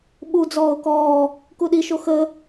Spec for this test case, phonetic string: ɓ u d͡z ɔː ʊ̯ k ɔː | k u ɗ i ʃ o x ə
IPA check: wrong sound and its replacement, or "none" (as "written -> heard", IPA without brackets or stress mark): none